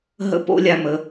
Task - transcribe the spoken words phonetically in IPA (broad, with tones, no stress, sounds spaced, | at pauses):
ɦ ə̰˥ p o̰˥ lʲ a˧ m ə˩˧